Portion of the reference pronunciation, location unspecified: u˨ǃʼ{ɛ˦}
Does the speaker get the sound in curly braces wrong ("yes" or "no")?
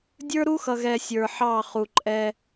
no